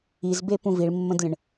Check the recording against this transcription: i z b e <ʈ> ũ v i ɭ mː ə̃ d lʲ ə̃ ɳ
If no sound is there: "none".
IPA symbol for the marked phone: p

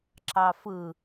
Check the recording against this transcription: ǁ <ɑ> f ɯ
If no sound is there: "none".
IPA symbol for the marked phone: ɑ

